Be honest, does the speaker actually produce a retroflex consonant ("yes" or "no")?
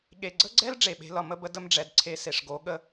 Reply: yes